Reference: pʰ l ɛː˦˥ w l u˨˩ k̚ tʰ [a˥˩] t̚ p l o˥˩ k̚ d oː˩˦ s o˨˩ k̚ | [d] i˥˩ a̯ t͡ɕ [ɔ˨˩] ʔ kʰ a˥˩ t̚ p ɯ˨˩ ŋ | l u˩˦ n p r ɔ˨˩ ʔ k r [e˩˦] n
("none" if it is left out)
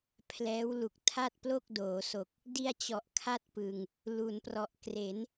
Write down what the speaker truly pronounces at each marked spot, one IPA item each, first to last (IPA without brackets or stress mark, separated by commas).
a˥˩, d, ɔ˨˩, e˩˦